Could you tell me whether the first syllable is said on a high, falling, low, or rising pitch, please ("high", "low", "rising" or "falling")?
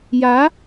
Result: rising